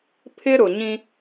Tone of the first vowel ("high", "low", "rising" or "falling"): high